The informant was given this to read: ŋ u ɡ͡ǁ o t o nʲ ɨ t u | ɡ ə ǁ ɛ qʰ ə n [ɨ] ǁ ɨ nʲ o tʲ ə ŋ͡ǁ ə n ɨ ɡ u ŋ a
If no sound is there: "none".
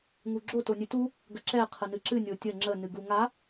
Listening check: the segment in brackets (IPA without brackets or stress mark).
ɨ